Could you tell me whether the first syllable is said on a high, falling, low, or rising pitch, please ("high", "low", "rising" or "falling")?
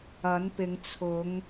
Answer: rising